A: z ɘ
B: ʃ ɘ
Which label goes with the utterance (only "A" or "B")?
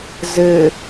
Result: A